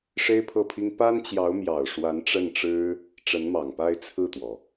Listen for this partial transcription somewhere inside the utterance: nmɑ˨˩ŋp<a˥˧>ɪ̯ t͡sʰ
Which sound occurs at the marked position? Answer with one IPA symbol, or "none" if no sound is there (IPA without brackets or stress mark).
a˥˧